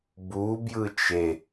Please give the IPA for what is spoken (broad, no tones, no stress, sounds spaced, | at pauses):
b u b j ɯ t͡ʃ e